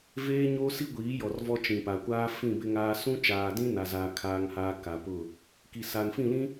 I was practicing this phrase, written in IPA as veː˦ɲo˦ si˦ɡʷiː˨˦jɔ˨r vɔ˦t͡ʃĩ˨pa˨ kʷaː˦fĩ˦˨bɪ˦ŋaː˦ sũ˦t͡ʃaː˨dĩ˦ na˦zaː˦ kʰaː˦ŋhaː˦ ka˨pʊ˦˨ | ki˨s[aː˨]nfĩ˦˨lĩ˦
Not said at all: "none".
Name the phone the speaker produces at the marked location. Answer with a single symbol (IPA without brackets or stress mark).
a˨